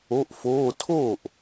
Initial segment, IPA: o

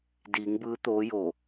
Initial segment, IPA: d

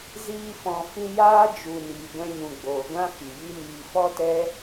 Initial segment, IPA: z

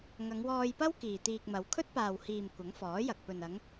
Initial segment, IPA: ŋ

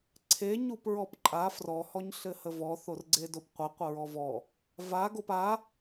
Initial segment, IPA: ǀʰ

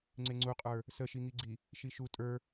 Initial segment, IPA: ŋ͡ǀ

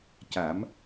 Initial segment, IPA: c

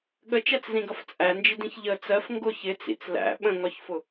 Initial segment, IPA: ɠ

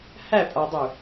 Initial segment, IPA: h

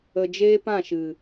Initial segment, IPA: ə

